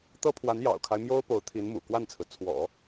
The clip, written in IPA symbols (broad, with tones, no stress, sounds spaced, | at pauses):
t̪ ɤ˥ pʰ w a˧˥ n j ɑ̰˨˩ ʊ̯ kʰ a˦ ɪ̯ m j o˥ ʊ̯ p o˧˥ ʊ̯ t̪ʰ i˧˥ n m ṵ˨˩ k w a˥˩ n t͡sʰ ɹ̩˩ t͡sʰ w ɔ̰˨˩˦